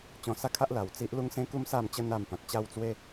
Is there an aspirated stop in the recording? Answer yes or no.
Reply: yes